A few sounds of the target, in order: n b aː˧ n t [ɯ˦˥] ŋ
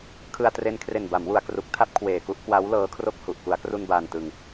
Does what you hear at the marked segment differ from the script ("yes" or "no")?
yes